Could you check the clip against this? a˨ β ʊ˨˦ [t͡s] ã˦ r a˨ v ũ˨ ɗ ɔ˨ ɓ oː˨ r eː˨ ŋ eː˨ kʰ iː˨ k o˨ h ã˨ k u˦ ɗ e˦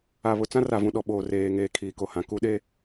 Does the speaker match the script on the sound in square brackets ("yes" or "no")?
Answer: yes